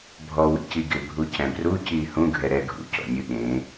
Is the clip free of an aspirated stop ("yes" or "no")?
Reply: yes